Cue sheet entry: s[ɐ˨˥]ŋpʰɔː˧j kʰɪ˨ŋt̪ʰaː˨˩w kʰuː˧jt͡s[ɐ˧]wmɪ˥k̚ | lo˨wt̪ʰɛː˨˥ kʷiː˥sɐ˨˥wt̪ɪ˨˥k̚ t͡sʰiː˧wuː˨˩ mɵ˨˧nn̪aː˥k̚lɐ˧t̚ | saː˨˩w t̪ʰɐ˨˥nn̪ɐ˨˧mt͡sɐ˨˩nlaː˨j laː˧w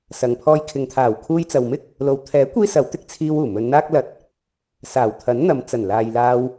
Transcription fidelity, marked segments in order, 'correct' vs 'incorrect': incorrect: ɐ˨, incorrect: ɐ˨

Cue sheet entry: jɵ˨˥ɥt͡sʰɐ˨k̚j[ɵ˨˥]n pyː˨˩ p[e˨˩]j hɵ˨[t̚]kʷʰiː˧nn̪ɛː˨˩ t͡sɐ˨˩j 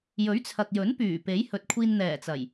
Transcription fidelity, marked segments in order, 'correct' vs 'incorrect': correct, incorrect: e˨˥, correct

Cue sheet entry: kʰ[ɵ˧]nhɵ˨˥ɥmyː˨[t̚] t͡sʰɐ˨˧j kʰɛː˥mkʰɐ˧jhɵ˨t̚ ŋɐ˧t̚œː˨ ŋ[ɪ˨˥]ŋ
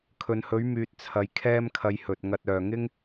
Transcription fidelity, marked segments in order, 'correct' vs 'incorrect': incorrect: ɵ˨, correct, incorrect: ɪ˥

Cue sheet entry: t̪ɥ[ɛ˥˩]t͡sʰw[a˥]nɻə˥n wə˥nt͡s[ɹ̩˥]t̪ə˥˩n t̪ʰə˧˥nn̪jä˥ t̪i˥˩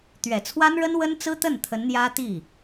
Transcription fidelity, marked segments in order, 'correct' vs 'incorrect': incorrect: ɛ˨˩, correct, correct

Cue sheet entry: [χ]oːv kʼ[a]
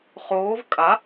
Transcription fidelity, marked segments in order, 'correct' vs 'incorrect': correct, correct

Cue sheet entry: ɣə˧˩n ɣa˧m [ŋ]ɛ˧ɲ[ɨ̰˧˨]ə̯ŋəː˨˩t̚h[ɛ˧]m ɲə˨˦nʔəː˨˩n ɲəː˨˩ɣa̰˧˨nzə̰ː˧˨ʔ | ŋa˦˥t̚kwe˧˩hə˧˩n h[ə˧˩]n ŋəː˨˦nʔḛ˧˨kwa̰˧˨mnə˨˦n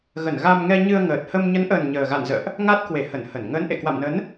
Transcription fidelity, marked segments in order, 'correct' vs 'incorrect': correct, incorrect: ɨ˧, incorrect: ə˧, correct

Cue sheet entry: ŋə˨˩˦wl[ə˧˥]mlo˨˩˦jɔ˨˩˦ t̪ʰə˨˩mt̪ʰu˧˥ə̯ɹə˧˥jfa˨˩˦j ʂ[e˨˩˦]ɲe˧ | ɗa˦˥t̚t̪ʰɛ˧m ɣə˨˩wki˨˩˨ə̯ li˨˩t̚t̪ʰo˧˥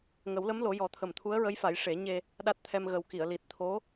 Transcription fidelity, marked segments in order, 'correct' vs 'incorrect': correct, correct

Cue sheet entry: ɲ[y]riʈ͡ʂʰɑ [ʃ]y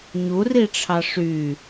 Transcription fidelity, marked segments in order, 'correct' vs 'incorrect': incorrect: u, incorrect: ʂ

